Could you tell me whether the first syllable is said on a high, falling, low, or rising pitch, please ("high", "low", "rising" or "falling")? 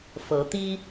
rising